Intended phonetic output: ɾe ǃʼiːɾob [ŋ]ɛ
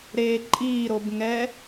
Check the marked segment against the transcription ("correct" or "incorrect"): correct